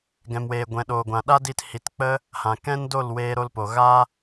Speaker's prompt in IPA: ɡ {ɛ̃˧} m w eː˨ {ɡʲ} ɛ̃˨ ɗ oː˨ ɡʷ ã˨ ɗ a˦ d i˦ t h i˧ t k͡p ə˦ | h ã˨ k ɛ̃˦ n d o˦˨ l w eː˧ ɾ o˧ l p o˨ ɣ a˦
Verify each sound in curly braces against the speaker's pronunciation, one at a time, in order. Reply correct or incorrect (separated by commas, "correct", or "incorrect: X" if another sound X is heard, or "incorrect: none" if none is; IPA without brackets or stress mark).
incorrect: ɛ̃˨, incorrect: ɡʷ